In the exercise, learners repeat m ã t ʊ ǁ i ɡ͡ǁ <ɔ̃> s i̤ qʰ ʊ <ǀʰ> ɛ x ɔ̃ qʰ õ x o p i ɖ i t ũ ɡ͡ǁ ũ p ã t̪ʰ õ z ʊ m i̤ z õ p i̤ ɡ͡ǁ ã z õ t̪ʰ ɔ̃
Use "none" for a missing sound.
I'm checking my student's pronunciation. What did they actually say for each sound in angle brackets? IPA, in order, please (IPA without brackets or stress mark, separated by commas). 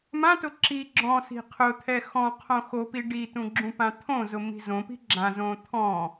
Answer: ɔ̃, t̪ʰ